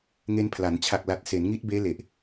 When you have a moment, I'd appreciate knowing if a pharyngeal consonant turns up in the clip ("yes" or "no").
no